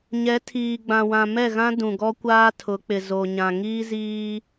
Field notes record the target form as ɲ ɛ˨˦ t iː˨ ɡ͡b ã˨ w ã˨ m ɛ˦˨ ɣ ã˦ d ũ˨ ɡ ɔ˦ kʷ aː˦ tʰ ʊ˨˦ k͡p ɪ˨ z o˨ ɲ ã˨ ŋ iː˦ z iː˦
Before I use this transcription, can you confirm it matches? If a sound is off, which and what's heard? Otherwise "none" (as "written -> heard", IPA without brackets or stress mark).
t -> tʰ